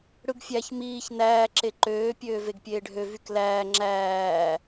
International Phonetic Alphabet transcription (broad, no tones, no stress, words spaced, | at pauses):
ɽɯɡfʲæç miːç næː ǁeǃøː pʲøːveɡpʲeːɖʱø vyklæː ŋ͡ǁæː